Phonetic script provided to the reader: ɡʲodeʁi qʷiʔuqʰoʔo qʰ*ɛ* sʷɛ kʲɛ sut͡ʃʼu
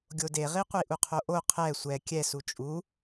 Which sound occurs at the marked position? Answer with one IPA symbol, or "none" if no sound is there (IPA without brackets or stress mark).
ɛ